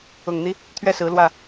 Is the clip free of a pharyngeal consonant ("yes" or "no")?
yes